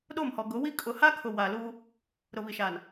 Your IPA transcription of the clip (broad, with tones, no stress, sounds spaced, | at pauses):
ɗ o˦˨ m h ɔ˨ ɡ ʊ˨˦ w i˦ kʼ ʊ˨ h a˦ kʰ ʊ˨ w a˨ l u˦ | ɾ ʊ˨ β i˨ ʃ aː˨ n